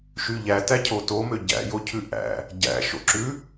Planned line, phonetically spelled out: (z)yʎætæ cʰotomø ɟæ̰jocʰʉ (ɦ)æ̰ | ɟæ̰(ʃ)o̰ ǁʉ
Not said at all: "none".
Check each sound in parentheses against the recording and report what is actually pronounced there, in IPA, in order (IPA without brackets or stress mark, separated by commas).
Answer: ʃ, ʔ, ʃ